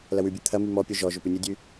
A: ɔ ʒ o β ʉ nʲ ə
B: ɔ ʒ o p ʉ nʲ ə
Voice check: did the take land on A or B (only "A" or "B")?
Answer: B